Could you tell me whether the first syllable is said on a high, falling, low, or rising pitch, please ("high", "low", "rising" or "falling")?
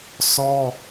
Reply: high